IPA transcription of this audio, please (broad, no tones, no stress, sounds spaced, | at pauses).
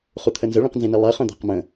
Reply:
χ u t̪ʰ ə n z ə ɭ ĩ q n z ĩ n i lˠ ɜ χ œ̃ d̪ a̤ q m ə̃